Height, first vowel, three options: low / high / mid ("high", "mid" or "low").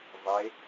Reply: mid